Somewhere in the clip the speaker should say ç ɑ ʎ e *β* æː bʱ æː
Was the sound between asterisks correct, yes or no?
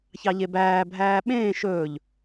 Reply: no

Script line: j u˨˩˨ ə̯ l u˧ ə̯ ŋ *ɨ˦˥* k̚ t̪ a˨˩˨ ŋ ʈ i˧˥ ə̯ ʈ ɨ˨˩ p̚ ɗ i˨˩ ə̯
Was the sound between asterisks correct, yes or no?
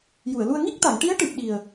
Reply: no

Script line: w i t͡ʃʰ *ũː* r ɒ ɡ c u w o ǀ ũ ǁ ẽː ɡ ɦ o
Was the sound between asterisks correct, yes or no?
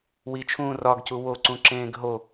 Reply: yes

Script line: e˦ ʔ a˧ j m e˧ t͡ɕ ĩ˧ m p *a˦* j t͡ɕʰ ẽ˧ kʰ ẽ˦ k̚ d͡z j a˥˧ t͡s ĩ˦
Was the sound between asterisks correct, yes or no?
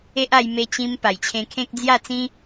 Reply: no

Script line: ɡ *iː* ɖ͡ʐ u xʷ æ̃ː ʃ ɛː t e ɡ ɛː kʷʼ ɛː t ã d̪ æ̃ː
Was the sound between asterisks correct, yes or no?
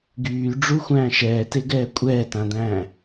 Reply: no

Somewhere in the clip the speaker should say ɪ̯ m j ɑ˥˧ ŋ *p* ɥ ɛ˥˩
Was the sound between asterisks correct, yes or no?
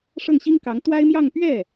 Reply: yes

